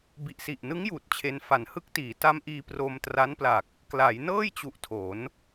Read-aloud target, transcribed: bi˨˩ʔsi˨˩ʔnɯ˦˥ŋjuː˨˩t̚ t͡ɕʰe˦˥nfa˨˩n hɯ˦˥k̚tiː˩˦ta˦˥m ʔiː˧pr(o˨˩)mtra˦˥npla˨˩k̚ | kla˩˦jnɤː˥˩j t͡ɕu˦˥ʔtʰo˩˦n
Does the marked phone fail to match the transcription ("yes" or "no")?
yes